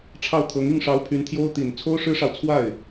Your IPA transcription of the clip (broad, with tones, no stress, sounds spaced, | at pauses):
ʈ͡ʂʰ ɑ˥˩ ʊ̯ t̪ʰ ɤ˧˥ ŋ i˥˩ ŋ ʂ ɑ˧˥ ʊ̯ pʰ y˧˥ n t̪ʰ j o˥ ʊ̯ t̪ i˨˩ n t͡sʰ o˥ ʊ̯ ʂ ɻ̩˥ ʂ ɑ˨ ʊ̯ t͡sʰ w a˥˩ ɪ̯